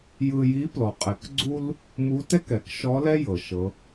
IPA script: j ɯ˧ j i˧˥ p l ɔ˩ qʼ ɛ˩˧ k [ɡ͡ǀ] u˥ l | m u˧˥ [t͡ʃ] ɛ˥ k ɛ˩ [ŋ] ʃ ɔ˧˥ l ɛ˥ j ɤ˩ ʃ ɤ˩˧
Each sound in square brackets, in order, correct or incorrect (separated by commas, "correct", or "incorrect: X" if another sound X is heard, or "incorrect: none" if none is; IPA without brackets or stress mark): correct, incorrect: t, incorrect: k